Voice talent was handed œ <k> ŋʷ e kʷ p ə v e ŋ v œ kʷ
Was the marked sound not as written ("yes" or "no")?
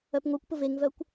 yes